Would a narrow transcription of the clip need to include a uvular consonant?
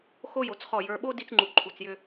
yes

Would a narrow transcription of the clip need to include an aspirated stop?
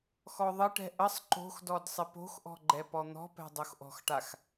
no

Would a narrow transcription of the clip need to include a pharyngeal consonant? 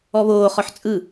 yes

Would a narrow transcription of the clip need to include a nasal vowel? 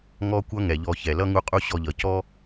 no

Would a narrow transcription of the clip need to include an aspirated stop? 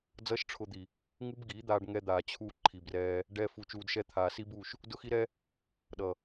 yes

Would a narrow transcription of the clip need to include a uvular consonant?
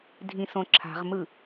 yes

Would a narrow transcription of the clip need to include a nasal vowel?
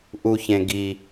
yes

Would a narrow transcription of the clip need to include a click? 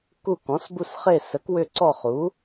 yes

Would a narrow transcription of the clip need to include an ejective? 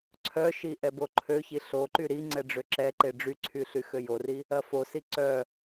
no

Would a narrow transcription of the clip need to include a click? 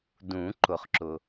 yes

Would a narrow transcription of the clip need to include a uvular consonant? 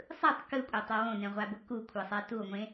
yes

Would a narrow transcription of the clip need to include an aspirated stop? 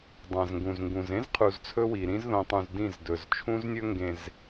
yes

